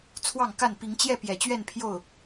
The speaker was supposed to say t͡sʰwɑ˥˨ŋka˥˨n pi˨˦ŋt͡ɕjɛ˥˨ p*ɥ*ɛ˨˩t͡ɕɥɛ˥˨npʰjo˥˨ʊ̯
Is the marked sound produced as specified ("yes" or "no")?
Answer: no